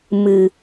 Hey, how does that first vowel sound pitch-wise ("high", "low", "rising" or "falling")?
low